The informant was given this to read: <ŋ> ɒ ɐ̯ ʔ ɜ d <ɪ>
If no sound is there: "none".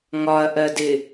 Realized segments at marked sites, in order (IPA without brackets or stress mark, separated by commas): ŋ, ɪ